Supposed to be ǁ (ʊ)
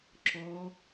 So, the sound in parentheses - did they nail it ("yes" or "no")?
no